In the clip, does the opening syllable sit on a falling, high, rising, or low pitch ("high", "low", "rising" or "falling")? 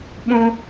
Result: high